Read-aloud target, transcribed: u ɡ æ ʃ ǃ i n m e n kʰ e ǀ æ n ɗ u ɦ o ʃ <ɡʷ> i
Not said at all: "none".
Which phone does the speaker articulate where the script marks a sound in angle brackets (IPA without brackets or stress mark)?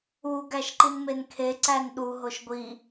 ɡʷ